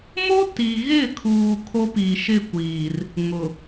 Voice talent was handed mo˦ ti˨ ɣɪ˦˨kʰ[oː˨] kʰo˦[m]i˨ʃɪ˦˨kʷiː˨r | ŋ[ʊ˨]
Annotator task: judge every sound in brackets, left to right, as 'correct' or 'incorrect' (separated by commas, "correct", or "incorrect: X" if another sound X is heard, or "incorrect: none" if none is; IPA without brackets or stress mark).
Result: incorrect: uː˨, incorrect: p, correct